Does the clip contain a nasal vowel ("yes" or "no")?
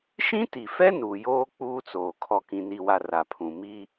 yes